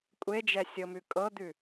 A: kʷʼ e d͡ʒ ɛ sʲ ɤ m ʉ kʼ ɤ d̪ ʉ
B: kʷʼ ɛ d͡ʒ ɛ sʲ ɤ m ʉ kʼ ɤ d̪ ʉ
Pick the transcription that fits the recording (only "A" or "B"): A